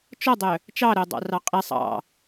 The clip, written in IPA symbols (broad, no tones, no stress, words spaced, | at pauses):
t͡ʃɔdˤœ | t͡ʃɑɾodˤɑ̰rɑ qʼi sˤɑ̰